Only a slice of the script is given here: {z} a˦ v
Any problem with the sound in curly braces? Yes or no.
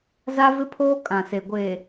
no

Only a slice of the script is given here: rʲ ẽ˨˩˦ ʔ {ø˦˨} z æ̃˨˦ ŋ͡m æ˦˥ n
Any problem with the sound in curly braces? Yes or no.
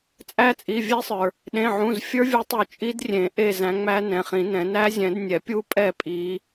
yes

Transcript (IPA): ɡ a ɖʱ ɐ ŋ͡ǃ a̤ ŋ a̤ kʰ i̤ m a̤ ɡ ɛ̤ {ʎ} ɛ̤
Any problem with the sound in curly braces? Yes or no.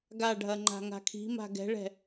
yes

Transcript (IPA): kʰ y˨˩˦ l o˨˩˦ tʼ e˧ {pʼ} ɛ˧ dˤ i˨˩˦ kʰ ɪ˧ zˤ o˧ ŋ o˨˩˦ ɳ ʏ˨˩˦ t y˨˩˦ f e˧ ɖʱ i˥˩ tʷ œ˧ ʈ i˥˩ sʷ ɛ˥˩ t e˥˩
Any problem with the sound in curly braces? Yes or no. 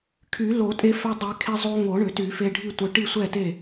yes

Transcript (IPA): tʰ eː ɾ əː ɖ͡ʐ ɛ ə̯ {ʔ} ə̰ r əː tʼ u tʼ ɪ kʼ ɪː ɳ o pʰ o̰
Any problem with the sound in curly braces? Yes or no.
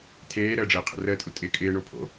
yes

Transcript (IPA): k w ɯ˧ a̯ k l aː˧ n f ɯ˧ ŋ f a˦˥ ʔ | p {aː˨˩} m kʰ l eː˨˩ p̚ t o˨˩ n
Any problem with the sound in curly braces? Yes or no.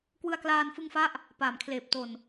no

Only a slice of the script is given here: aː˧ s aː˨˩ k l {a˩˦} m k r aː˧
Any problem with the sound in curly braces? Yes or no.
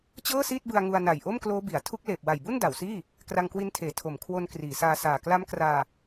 yes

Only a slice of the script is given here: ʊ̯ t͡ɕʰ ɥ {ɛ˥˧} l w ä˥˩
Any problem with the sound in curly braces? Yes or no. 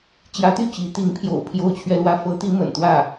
no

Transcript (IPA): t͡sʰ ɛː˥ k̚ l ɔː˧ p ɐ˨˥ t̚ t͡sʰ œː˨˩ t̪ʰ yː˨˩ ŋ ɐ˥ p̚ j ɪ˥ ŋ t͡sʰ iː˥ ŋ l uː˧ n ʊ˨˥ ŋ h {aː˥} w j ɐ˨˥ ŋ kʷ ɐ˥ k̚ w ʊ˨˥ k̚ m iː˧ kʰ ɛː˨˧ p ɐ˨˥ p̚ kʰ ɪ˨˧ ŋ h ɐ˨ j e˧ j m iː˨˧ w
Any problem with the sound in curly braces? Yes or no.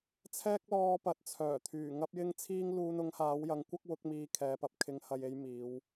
yes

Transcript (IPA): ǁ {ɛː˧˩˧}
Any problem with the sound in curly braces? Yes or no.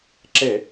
yes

